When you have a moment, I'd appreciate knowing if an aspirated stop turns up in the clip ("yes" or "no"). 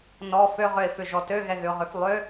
no